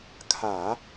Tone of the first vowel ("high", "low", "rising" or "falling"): low